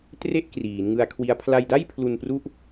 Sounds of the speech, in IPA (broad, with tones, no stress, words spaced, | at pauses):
tre˥˩ʔ kriː˩˦n ŋɯ˧a̯kʰwi˦˥a̯ pʰla˧jda˥˩jpʰlu˧npru˦˥ʔ